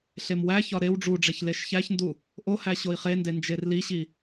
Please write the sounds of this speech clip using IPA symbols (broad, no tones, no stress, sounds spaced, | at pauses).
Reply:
ɬ e m w æ ç ɒ ɾ e w ɖ͡ʐ u ɖ͡ʐ e ç l e ʃ ç æ ç n d u | ʔ o h æ ɕ o i̯ χ e n d e n d͡ʒ e r l i ɕ i